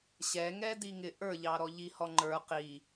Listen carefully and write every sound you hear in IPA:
ɕ ɛ ŋ ɛ d i ŋ ɪ ʔ ə˞ ʎ ɑ ɾ ɔ ʎ i h ɔ ŋ͡ǃ ə˞ q i

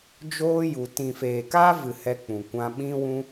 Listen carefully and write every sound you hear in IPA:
d͡ʒ oː˦ j u˨ t ĩ˨ f eː˨ k aː˦ v ɨ˨ h ɛ˧ k͡p ũ˨ kʷ ã˧ ɓ ĩ˦ w ũ˦

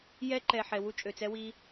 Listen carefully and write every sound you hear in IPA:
j ɛ˧ ǃ ɛ˨ ħ ɛ˨ w u˧ t͡ʃʼ ø˨ t͡s ɛ˧ w i˧

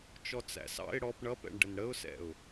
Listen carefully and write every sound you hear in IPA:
t͡ʃ ɔ t͡s æ̰ s ɑ̰ ɪ̯ ɽ ɔ p ɳ ʌ p ɛ̰ ɳ ɖ ə n ɽ ə ʊ̯ s ɛ̰ ʊ̯

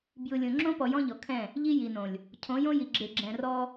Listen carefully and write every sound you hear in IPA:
b j ɯ˨ lʲ õ˨ ŋ͡ǁ õ˦ p ɔ˨ j ɔ̃˦ ʎ ɔ˨ kʰ ɛ̃˦˨ | ʎ i˦ j i˨ n õ˨ lʲ | cʰ õ˨˦ j õ˦ j i˨ ɡ͡ǁ e˨ ɡ͡ǁ ɛ̃˨ r ɔ˦

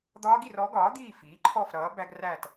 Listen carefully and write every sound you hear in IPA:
d̪ ɒː˦˥ ɡ i˥˨ r ɔ˩˥ ɡ ɒː˩˥ d̪ iː˥˨ f iː˩˥ ǃʰ ɔ˥˨ f ɾ ʌː˩˥ b æ˦˥ ɡ r æ˥˨ t

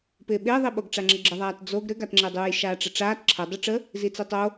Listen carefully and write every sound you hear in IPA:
p ɪː ɓ ɪː ðˤ i ɓ o ɡ ʈ͡ʂ a ŋ͡ǁ ə ɡ͡ǁ ə ðˤ aː t d͡z o ɡ ɾ ɘ ɡ a t ŋ͡ǁ ɪː dˤ uː j ʃ aː ʈ͡ʂ ɪ ʈ͡ʂ aː t ǁʰ ə dˤ u ʈ͡ʂ ə | z i t͡s i tˤ o

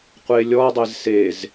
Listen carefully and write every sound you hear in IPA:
qʷ e lʲ ɔ dˤ e z s e z

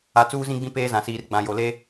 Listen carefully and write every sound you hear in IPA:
a˨ t͡s uː˦ z ĩ˦ ɡ͡b ĩ˦ p eː˦ z ã˨ s iː˨ r ɡ͡b ã˨ j o˨ l e˦

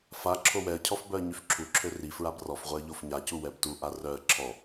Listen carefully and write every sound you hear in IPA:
f a ǁʰ o w ɛ ə̯ cʰ ɔ f b œ ə̯ ɲ y f ǁʰ u ǁʰ ø r i f ɹ a b r ɔ f ʁʷ ɛ ə̯ ʎ o f ɲ a c u w ɛ b t u ʔ a r œ ə̯ ǁʰ ɔ

